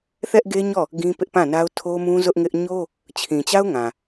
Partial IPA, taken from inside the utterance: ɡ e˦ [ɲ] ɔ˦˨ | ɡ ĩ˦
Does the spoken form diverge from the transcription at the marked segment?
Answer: no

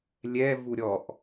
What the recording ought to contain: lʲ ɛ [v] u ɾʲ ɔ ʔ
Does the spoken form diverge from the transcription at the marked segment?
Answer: no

